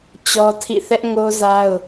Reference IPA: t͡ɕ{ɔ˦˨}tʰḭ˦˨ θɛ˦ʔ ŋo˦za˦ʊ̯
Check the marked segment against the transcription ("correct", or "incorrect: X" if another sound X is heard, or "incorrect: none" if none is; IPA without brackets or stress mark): incorrect: ɔ˦